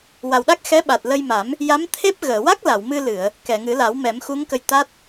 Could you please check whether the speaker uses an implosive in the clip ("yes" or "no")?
yes